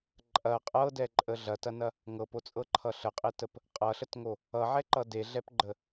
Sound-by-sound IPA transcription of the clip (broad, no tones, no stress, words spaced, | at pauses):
ǃʼɐ qʼɤdɛǃʼə ɮɐtɐnɐ | ŋɤpot͡sʼɤǃʰʌ ɬəqʼetəp | qʼʌɬətŋo | ʌʕɛǃʌ deɮɛpɡ͡ǃə